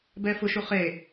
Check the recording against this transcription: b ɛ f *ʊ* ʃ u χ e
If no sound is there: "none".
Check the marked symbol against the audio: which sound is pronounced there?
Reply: ʊ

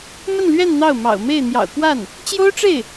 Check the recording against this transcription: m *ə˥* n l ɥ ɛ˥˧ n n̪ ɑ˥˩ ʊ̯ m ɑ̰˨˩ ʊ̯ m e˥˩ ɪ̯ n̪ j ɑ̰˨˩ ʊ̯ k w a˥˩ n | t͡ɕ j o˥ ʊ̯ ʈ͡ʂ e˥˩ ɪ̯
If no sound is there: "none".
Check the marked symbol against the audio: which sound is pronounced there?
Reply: ə˥˧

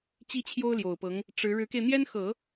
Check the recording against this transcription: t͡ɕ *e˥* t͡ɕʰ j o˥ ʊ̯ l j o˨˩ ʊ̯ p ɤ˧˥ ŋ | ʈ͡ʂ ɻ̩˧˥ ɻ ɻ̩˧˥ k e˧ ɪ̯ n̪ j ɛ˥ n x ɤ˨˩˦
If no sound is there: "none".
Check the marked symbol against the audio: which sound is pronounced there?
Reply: i˥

